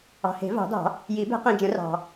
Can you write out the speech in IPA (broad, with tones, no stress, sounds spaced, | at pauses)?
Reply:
ɑ̤˨ h e̤˨˩˦ v ɑ̤˨˩˦ d ɑ̤˨˩˦ | j i˨˩˦ b e̤˨˩˦ q ĩ˨ d͡ʒ ə̃˨˩˦ r ɑ̤˨